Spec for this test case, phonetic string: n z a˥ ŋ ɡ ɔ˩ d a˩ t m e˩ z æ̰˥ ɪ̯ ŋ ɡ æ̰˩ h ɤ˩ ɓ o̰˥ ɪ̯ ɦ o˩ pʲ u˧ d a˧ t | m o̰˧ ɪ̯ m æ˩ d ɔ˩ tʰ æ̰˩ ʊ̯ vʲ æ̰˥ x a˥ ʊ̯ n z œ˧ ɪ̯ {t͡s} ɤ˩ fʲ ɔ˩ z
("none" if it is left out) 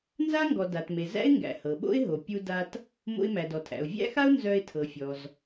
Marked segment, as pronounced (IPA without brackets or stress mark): tʰ